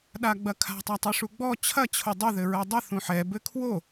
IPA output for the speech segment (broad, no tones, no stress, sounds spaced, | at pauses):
ɗ a ɡ͡b ɐ kʰ a̤ tˤ a tˤ ɨ ʂ u ɡ͡b ɔ t͡ɕʰ ɐ t͡ɕʰ o dˤ ɨ ð ɘ ɹ ɛ dˤ ɐ θ ũ ħ ɛ b ɘ kʰ w o